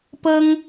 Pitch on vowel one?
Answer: high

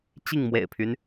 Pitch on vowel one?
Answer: falling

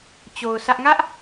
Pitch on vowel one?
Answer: low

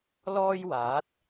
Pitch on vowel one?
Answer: high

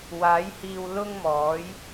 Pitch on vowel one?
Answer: rising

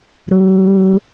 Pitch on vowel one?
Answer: low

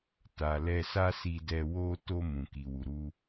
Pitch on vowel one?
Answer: low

